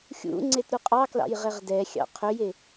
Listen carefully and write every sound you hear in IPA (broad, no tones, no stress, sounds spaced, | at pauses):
xʲ ṵ ŋ͡ǀ e t ɾ u qʼ ɑ k l ɑ̰ j ʁ e ʁ d ɛ xʲ ɑ̰ qʰ ɵ j e